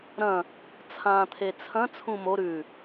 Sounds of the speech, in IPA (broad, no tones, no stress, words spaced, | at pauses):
ɾɐ̃ | t͡sʰãːt̪ʰet͡sʰɐ̃ t͡sʰũmo ɾʉ